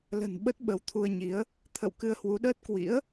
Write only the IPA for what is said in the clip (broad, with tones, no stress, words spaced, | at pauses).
lə̤˨˩n ɓə˦˥t̚ɓə˨˦wt̪ʰu˧ə̯ɲi˨˦ə̯ | t̪ʰə̰˧˨w kɨ˧ə̯hwu˨˦ɗəː˦˥t̚ kwḭ˧˥ə̯